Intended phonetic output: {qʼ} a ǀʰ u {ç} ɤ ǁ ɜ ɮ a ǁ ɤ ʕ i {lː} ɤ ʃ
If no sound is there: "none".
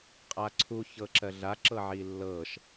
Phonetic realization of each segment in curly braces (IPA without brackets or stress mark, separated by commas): qʼ, ç, lː